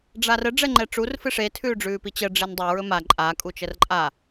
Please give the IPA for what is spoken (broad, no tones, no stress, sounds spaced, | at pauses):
ɖ͡ʐ a r ə ɖ͡ʐ ɛ ŋ͡ǃ ɛ ʈ͡ʂ u r f ɨ ʂ e tʰ ʉː ɖ͡ʐ ʉː p i t͡ɕ ə ɖ͡ʐ e n dˤ ɛ ɹ ɵ m a ǃʼ a kʼ u t͡ʃ ə r ǃʼ a